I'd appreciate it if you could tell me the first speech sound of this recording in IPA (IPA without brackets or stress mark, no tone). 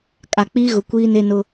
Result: kʼ